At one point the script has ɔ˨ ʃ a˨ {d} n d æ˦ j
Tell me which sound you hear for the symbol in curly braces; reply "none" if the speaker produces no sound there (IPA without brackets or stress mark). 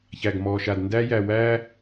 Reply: d